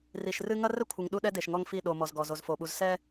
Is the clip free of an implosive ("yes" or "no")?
no